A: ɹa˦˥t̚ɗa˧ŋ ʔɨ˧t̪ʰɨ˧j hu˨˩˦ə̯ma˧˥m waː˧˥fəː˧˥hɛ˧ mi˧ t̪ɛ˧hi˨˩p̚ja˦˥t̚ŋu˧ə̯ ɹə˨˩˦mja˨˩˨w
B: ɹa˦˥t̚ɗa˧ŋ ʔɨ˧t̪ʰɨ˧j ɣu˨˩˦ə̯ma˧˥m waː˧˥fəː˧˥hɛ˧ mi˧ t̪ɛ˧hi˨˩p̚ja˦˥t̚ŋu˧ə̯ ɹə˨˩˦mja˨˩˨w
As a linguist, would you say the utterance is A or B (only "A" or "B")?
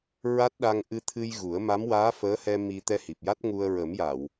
B